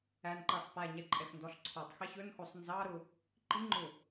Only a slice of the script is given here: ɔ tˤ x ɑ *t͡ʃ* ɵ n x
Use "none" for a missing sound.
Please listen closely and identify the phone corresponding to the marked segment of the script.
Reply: ç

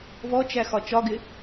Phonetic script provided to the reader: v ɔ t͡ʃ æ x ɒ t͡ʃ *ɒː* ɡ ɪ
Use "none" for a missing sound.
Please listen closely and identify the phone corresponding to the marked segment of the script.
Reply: ɒ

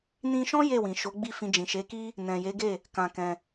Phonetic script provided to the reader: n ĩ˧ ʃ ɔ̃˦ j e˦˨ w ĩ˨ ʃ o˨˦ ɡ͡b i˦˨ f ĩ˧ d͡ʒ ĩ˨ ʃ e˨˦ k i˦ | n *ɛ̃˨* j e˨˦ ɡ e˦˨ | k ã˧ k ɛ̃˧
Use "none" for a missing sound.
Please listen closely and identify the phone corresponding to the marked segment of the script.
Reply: ɛ̃˨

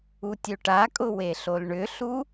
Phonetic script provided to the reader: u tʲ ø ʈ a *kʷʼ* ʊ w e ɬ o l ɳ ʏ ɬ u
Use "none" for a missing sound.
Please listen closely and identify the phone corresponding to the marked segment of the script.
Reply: kʼ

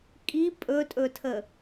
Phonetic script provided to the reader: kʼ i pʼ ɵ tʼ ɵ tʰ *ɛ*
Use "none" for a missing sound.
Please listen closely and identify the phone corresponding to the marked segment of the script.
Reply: ə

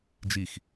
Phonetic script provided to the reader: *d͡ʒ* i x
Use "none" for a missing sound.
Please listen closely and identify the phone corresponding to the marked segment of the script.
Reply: d͡ʒ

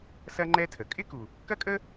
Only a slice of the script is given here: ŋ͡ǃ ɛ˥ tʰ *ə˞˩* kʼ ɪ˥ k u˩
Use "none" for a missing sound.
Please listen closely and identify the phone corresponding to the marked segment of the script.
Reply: ə˩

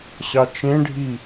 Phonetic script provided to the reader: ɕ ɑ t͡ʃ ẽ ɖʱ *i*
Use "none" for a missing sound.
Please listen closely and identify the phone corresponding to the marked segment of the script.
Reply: i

